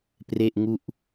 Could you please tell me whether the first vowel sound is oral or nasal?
oral